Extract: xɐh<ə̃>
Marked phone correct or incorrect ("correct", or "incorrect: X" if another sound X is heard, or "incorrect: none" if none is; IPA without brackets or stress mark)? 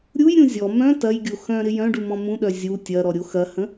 correct